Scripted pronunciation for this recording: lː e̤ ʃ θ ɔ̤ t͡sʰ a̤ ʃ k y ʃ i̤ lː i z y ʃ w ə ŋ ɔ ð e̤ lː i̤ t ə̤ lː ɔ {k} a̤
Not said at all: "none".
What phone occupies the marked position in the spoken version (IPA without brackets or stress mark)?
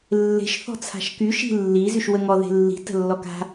k